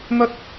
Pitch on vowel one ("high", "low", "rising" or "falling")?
high